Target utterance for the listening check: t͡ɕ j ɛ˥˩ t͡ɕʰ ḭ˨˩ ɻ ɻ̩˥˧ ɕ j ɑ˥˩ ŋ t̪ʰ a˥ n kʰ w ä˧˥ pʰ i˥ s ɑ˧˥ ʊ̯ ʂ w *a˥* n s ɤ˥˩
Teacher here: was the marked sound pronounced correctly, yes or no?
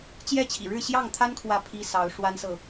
yes